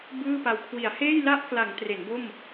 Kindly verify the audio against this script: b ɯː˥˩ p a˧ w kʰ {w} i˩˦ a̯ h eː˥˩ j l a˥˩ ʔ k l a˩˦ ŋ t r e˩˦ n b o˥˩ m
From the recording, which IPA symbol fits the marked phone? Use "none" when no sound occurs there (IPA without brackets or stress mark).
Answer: w